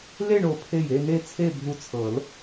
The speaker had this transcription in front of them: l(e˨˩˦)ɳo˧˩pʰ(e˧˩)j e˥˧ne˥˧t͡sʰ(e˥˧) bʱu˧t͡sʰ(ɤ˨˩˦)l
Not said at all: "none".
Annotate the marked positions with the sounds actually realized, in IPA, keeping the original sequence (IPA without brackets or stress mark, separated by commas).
e˥˧, e˧˩, e˥˧, ɤ˨˩˦